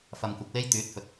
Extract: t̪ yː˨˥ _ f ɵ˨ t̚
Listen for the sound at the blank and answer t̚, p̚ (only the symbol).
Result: t̚